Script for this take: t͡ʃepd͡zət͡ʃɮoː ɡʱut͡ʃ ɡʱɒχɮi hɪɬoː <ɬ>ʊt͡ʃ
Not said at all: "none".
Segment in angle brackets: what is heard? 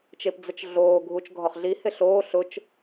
ɬ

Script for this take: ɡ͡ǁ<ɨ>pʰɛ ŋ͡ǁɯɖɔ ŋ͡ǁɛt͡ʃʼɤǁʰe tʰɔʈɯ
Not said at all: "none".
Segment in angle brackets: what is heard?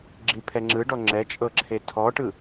i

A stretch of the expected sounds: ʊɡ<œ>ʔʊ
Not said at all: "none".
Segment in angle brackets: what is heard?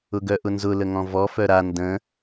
œ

